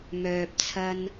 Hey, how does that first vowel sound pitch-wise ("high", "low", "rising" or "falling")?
low